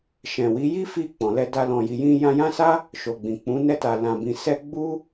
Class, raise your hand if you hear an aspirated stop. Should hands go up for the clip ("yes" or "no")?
no